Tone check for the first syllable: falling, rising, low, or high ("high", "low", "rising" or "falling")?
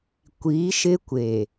rising